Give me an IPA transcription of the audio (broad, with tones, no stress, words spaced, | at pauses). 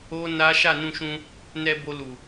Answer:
o˦ na˦ ʃa˦˨nũ˧ʃũ˧ | nɛ˧ bo˧lu˨